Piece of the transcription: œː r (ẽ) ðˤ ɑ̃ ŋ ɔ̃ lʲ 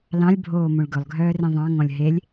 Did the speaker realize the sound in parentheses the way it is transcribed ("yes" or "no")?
yes